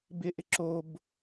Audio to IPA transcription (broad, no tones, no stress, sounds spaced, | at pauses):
b ɪ ʔ ɪ ǁ o b